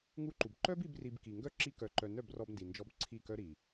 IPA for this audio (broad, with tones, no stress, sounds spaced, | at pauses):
ŋ u˦ ǃ u˨ b ǃ œ˦ b i˦ b r i˧ b k i˨ ŋ ɡ œ˦ ǁ i˧ k œ˨ ǃ œ˨ n œ˦˨ b r ɔ˧ b n d i˨ n d͡ʒ ɔ˧ b ǀʰ i˦˨ k œ˦ ɾ i˨